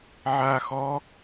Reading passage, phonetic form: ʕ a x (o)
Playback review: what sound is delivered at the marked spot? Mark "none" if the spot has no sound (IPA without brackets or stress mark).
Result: ɔ